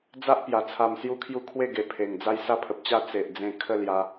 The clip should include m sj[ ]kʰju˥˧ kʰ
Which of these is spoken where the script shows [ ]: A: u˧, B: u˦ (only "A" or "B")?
B